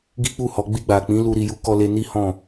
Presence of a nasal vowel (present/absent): present